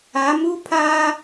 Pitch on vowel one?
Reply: rising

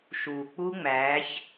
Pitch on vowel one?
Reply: low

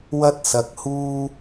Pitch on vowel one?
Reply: high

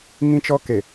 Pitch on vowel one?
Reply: high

